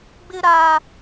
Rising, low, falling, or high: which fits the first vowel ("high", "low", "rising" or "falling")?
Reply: high